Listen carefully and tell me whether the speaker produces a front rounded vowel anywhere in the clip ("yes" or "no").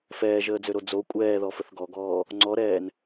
yes